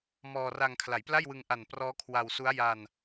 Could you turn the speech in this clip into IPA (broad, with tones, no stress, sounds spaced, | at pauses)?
m ɔː˧ r a˧ ŋ kʰ l a˩˦ j p l a˥˩ j w ɯ˧ ŋ ʔ a˨˩ n p r ɔː˦˥ kʰ w a˧ w s u˦˥ a̯ j a˧ n